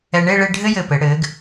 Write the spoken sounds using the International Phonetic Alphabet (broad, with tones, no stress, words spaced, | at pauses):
ɛ˧ɳe˥˧ ɭe˥˧ɖʱɘ˥jɘ˧˩pɘ˩˧ ɽɘ˩˧ɡ